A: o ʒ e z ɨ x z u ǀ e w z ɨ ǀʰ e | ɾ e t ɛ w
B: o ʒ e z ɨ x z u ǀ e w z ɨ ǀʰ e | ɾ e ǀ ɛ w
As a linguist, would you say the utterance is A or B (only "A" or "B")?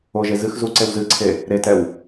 A